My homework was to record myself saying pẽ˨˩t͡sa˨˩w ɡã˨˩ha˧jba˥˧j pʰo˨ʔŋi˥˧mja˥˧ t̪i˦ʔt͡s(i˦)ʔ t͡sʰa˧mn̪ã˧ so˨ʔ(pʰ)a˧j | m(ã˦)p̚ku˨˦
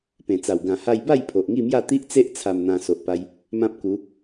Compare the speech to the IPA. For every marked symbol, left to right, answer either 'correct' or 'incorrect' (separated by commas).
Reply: incorrect, incorrect, correct